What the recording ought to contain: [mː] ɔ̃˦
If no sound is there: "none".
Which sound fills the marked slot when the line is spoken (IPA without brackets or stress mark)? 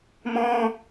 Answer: m